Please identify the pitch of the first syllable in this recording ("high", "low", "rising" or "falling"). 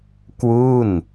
falling